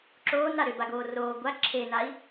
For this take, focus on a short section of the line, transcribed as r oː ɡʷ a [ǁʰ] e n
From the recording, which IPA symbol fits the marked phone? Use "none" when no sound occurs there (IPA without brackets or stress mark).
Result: ǁʰ